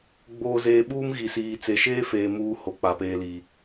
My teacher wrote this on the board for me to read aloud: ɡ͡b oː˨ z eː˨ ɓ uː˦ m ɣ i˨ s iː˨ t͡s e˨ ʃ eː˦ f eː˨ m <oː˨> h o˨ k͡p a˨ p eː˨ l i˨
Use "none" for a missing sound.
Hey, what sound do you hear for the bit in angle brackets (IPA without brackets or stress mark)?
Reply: uː˨